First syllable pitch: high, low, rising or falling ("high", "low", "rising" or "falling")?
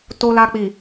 low